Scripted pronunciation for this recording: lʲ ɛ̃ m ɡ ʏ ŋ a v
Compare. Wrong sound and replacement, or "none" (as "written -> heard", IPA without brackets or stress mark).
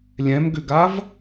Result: ŋ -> ɡ